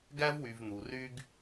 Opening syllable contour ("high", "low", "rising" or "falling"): high